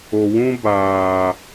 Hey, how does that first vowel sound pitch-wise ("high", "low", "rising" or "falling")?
low